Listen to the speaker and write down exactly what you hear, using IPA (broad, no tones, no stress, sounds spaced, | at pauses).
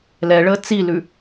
l ɛ ɭ əː t͡s i l ʉ